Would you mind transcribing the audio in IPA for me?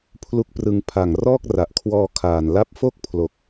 pʰ l u˦˥ k̚ p r ɯ˧ ŋ pʰ a˨˩ ŋ r ɔː˥˩ k̚ r a˨˩ ʔ kʰ w ɔː˧ kʰ aː˨˩ n l a˦˥ p̚ f o˥˩ k̚ pʰ l o˨˩ k̚

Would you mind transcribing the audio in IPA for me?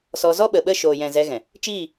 s ɔ˧ z ɔ˦ ɓ ə˨ ɓ ə˦˨ ʃ oː˨ j ɛ̃˨ z ɛ˧ ɣ ɛ̃˨ | t͡ʃ iː˦˨

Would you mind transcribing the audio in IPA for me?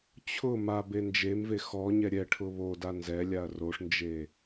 t͡ɕʰ ʊ m a b e n d͡ʒ e m v e x ɔ ɲ ɛ ɾʲ ɛ ʈʰ ʊ β o d a n z ɛ lʲ a ɐ̯ r o ʂ n d͡ʒ e

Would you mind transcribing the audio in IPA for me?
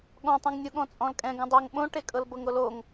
ɠ ɔ̃ tˤ ũ ŋ nʲ u ɠ ɔ̃ t͡sʼ ɔ̃ l kʼ ɛ̃ ɡ õ dˤ ɤ ŋ ɓ õ ʈ e kʼ ɤ l b ɤ ŋ ɾ o l o ŋ

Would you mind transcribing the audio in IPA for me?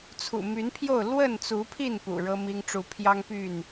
t͡sʰ ṵ˨˩ m y˨˦ n pʰ j o˥˨ ʊ̯ l w ə˥˨ n t͡s u˨˦ pʰ i˥˨ n p ṵ˨˩ ɻ ɤ˦ m i˦ ŋ ʈ͡ʂ u˦ pʰ j ɑ˦ ŋ p y˥˨ n

